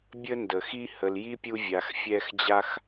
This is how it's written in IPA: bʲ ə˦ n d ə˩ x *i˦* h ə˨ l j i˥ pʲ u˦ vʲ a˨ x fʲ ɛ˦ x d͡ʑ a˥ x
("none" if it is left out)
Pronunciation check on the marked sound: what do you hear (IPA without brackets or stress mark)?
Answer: i˦